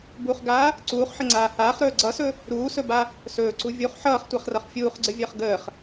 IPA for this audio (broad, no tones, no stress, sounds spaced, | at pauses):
b u χ ɡ aː | ǀ uː χ ħ ə ŋ͡ǀ aː h aː χ ɾ ɵː ɡ͡ǀ ʌ s ɵ | ɾ uː s ɵ b a | s ɵː ǀ u vʲ u χ ħ ʌː χ tʷ a χ r ʌ χ fʲ uː χ ɡ͡ǀ ə vʲ əː χ ɡ əː χ